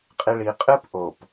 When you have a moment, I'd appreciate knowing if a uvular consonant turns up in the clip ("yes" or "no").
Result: yes